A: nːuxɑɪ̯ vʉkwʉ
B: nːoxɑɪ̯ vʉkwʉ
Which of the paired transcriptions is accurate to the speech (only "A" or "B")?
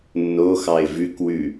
B